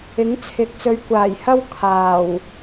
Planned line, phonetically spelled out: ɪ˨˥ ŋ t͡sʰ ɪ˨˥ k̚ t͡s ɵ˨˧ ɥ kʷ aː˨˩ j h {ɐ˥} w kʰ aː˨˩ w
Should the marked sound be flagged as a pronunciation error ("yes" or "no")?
no